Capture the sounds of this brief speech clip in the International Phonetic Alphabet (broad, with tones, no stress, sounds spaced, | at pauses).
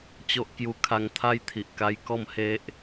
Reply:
t͡ɕ o˦ ʔ k j u˧ kʰ a˧ ŋ t̪ʰ a˦ j t̪ʰ i˨ ʔ k a˧ j k ɔ˥˧ m h e˦ ʔ